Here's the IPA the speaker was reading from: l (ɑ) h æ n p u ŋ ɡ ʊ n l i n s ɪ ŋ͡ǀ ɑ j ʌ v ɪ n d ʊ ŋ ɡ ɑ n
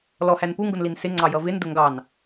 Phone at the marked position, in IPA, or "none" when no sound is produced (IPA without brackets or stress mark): ɔ